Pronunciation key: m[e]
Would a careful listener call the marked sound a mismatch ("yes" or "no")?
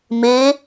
no